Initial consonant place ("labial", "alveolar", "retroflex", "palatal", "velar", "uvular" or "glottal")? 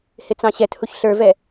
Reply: glottal